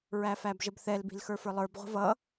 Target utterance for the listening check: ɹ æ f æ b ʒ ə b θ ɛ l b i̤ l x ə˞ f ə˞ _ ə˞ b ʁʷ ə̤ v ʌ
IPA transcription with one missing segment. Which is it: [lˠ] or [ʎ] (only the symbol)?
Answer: lˠ